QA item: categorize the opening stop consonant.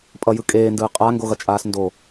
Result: ejective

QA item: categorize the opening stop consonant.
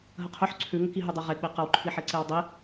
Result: aspirated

